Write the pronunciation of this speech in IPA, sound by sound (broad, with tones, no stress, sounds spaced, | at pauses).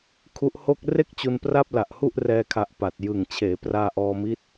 kʰ u˦˥ ʔ h o˥˩ k̚ r e˥˩ k̚ t͡ɕ u˧ n p r a˥˩ p̚ l a˨˩ ʔ h u˥˩ ʔ r ɛː˧ kʰ a˨˩ ʔ p a˨˩ t̚ j ɯ˨˩ ŋ t͡ɕʰ eː˩˦ p r aː˧ ʔ ɔː˧ m i˦˥ t̚